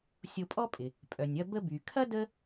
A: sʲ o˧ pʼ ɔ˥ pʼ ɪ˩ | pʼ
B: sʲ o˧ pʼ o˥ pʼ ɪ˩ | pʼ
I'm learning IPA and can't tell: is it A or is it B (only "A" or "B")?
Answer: A